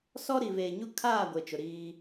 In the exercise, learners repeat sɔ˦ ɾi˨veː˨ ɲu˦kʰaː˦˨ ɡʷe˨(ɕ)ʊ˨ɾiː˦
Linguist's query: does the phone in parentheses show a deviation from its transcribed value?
yes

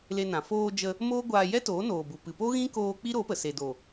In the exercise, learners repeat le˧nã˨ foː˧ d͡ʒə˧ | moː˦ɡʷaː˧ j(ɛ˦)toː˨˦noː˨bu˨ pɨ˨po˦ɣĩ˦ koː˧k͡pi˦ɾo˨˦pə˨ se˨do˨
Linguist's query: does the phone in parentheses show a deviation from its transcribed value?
no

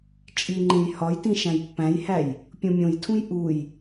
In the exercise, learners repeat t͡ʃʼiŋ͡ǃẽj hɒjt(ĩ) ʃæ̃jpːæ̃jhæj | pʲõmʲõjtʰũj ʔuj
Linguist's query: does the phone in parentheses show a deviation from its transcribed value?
no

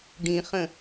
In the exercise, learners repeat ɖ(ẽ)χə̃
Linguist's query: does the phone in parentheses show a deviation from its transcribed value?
yes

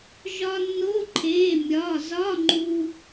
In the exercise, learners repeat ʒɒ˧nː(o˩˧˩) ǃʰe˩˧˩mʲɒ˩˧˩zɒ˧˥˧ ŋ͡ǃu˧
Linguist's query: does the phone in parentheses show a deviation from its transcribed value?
yes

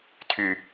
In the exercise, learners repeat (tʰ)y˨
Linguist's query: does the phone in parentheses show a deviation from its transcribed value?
no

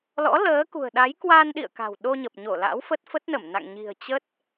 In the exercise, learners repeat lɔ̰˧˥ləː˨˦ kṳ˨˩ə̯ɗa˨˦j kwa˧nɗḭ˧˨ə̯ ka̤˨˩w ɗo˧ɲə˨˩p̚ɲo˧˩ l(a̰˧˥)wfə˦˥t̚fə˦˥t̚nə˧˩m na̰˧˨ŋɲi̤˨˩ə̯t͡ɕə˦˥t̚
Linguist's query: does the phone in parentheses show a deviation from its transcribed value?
no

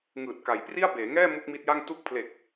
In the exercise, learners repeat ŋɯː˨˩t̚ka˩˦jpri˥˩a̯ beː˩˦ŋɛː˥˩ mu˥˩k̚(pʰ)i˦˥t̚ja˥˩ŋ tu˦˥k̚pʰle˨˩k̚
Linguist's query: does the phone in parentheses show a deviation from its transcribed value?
yes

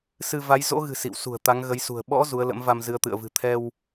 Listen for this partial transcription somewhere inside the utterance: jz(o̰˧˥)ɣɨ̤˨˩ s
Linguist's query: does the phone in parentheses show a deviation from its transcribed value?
no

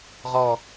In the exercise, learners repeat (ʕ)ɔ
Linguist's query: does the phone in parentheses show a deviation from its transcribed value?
yes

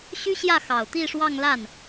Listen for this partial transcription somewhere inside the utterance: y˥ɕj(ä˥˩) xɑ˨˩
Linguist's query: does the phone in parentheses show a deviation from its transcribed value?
no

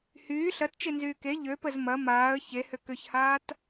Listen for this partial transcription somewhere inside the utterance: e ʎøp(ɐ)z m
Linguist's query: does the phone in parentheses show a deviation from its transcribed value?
yes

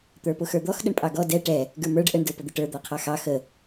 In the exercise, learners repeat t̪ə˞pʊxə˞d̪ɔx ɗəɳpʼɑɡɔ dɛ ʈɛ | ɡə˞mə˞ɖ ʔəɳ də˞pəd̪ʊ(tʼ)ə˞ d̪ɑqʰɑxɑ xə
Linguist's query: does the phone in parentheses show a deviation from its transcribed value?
yes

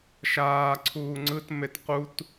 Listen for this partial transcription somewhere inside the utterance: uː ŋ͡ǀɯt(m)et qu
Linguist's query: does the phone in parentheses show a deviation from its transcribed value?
no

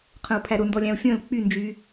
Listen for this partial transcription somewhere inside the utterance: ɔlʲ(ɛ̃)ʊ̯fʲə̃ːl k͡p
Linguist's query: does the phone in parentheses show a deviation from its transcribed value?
yes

